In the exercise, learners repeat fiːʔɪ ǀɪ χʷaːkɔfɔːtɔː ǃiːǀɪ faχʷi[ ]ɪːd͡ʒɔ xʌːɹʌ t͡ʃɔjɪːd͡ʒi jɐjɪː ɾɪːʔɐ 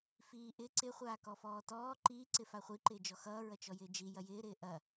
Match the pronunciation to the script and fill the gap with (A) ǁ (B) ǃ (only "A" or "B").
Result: B